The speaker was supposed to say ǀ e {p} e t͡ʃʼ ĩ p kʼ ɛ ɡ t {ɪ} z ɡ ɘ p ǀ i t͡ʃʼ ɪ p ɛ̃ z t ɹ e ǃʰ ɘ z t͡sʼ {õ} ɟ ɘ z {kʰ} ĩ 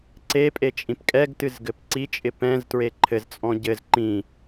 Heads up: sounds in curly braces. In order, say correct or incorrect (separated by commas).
incorrect, incorrect, incorrect, incorrect